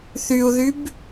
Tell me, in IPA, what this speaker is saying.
θ y u̯ ð y b

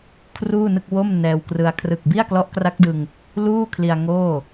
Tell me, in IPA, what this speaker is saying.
kʰ r uː˥˩ n ɯ˥˩ k̚ w o˥˩ m n ɛː˧ w k r ɯ˧ a̯ kʰ r ɯ˨˩ k̚ b i˥˩ a̯ k l ɔ˦˥ ʔ k r a˦˥ k̚ d ɯ˧ ŋ | l uː˥˩ kʰ l i˧ a̯ ŋ oː˥˩

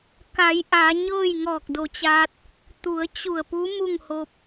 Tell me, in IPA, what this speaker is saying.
k a˩˧ j ʔ a˩˧ ɲ ɤː˥˨ j ŋ ɔː˧˩ k̚ d o˧˩ t͡ɕ aː˧ t̚ | t̪ u˩˧ ə̯ t͡ɕ u˧˩ ə̯ p u˧˥ m u˥˨ ŋ h o˧ p̚

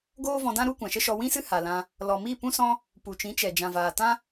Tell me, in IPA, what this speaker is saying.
ɡ oː˦ v ɔ̃˧ d ã˦ ɾ u˦ kʷ ã˨ ʃ ə˦ ʃ ɔ˧ w ĩ˦ s ɨ˦ h a˨ l ã˧ | l ɔ˨ m i˦˨ p ũ˦ s ɔ̃˦ | p u˨ t͡ʃ ĩ˨˦ t͡ʃ ɛ˨ d͡ʒ ã˨ v aː˨ t ã˦

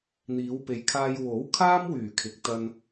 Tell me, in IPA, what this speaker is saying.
n̪ iː˨˧ w p e˨˧ j kʰ aː˧ j w o˨˥ w kʰ aː˥ m w yː˨˩ kʰ ɪ˨ k̚ t̪ ɐ˧ n

